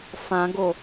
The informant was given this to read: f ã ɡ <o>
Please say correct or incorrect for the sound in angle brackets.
correct